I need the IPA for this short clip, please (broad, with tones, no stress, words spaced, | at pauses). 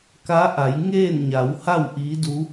ka˧˥ʔa˩˧j ŋeː˥˨nɲa˩˧w ha˥˨w ʔiː˧˥du˧˥